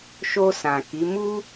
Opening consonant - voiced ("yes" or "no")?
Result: no